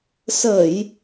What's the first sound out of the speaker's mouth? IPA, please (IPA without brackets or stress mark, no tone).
s